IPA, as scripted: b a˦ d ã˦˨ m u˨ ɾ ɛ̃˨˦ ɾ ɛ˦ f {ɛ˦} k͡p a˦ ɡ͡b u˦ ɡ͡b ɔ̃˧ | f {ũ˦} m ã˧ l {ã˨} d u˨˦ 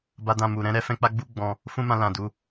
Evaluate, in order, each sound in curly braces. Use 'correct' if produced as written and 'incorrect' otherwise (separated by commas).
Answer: incorrect, correct, correct